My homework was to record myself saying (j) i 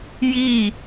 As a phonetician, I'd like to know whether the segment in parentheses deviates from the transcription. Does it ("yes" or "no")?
no